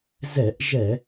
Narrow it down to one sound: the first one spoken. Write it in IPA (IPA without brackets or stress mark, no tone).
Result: z